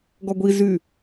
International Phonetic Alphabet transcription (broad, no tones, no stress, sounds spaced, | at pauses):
ɡ ɔ ɡʷ i z y